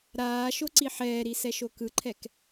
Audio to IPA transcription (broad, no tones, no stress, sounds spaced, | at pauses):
ɾ aː ʃ o ǀ i ħ ɛː ɾ i s ɛ ʃ o k ɯ ǃʰ ɛ k